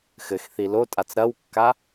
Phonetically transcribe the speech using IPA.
x ɘ x θ i l o tʼ a t͡s ɾ ɐ w kː a

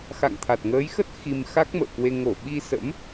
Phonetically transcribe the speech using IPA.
x a̰˧˨ ŋ t̪ʰ a˨˩ t̚ ŋ əː˨˦ j x ə˦˥ t̚ x i˧ m x a˦˥ k̚ m ə̰ː˧˨ k w e˧ ŋ o˧˩ ɓ i˧ s ə̰˧˥ m

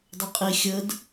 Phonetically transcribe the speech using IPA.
dˤ ɘ qʼ i xʲ ə d

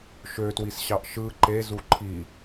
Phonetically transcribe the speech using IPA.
ʃ ø t w i s ɕ ɑ ʔ ʃ ɯ ǃ e z u ǃʰ i

